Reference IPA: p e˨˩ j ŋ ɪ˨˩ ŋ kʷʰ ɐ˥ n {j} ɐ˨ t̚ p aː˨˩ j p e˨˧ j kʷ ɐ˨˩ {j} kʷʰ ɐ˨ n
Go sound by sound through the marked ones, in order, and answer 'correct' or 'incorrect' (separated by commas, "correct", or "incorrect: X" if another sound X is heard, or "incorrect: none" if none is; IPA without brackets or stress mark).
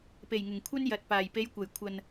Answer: correct, correct